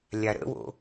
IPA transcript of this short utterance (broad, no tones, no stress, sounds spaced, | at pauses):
lʲ a ɾ ə̰ w o̰